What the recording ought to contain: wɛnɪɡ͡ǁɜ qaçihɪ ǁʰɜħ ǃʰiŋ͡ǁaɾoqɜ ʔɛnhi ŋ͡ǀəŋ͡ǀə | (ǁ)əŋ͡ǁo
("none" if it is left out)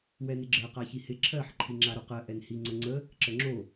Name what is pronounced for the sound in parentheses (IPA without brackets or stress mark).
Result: ǁ